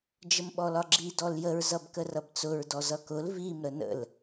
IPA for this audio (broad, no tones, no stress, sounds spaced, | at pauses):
d͡ʒ ə m ɓ ɔ l ɒ ɡ͡ǁ i d ɔ l j ə ɹ z ʌ b k ə r ʌ b t͡s ʊ ɹ d ɔ z ʌ k ʊ l v i m ɾ ə n ə̰ l